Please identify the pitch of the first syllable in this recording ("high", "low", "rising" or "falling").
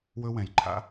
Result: high